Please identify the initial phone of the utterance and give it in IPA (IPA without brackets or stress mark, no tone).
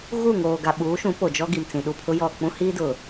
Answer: ɣ